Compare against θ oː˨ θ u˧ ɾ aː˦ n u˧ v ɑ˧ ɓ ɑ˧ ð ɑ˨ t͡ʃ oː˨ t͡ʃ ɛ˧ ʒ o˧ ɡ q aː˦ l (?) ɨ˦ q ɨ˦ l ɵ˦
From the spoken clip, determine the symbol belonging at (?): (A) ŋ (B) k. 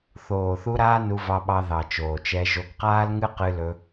A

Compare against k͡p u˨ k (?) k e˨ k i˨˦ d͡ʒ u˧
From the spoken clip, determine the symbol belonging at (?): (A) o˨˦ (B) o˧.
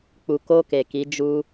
B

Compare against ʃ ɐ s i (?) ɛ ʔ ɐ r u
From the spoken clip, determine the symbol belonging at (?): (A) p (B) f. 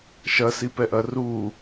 A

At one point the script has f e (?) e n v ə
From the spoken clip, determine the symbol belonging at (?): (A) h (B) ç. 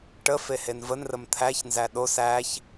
A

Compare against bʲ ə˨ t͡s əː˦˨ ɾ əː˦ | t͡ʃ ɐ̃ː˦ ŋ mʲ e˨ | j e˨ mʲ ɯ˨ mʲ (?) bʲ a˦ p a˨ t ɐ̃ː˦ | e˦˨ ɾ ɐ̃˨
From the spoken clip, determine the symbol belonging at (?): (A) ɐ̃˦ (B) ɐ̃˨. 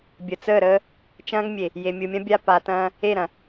A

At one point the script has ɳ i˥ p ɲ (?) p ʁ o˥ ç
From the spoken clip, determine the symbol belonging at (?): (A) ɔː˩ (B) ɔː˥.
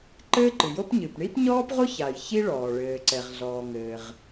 B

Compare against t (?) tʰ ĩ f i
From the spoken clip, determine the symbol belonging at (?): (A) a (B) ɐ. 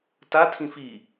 A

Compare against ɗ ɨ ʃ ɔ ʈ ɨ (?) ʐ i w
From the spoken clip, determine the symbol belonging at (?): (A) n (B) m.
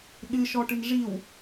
A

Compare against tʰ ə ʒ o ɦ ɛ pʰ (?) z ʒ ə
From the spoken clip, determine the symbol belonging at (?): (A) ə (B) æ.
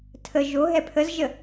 A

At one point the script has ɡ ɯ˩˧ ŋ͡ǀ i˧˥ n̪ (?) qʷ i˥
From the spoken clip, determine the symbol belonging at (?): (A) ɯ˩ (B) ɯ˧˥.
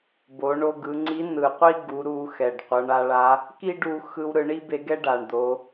A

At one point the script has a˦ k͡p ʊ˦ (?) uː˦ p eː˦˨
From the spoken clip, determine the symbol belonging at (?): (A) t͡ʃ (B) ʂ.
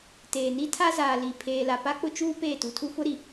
A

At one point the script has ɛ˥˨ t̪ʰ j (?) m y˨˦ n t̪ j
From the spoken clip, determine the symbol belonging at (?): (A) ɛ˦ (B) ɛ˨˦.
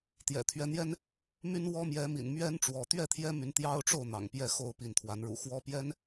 A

